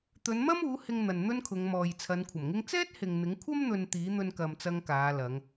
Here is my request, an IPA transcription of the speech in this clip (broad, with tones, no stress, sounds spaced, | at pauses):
t̪ ɵ˨˧ n m ɐ˥ m uː˨˥ h ɪ˧ ŋ n̪ ɐ˨ n n̪ ɵ˥ n kʰ ʊ˨˧ ŋ m ɔː˨ j t͡sʰ ɐ˨˧ n kʷʰ ɐ˨˩ m ŋ ɪ˥ ŋ t͡s ɛː˥ t̚ h ɪ˨ ŋ n̪ ɪ˨˥ ŋ kʷʰ ɐ˥ m n̪ ɵ˨ n t̪ iː˨˥ n̪ ɵ˧ n k ɐ˨ m t͡s ɐ˧ ŋ k aː˨˧ l ɐ˨˧ ŋ